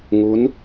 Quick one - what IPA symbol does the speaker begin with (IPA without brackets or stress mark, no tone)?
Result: ŋ